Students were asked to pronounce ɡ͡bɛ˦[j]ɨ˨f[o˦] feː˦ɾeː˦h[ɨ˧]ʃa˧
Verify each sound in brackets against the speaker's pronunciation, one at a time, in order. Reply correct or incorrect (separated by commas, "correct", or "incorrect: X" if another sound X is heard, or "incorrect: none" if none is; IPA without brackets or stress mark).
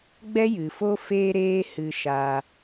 correct, correct, correct